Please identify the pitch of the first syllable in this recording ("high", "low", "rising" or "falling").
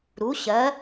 rising